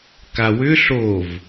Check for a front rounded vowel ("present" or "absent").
present